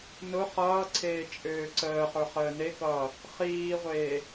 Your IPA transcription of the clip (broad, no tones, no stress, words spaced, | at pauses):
nʊ χʌːǀʰeː t͡ʃʼøːǀəːχə˞ χəːnekʌː | χiːʁʷeː